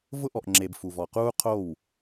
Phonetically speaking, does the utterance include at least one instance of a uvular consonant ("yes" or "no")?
yes